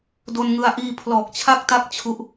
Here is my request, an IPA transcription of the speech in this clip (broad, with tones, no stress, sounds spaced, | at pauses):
d o˧ n ŋ ɯ˧ a̯ ʔ iː˧ pʰ l ɔː˨˩ k̚ t͡ɕʰ a˦˥ k̚ t a˦˥ k̚ t͡ɕʰ u˦˥ ʔ